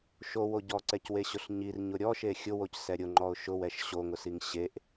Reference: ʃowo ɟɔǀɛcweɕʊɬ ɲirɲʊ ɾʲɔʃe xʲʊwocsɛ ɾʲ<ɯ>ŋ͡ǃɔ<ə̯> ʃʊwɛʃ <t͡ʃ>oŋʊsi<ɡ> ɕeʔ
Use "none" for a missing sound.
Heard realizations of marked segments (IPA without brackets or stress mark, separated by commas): ʊ, ʊ̯, ɕ, ŋ